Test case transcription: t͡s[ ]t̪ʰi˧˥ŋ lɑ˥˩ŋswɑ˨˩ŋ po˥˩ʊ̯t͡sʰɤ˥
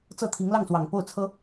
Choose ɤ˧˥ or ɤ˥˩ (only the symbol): ɤ˥˩